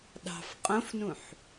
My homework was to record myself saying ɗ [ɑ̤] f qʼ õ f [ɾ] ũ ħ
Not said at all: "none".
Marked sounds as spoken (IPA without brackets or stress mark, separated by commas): ɑ̤, n